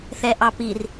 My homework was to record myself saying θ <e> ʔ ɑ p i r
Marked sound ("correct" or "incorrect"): incorrect